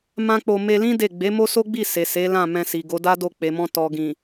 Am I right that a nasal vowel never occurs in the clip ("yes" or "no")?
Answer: no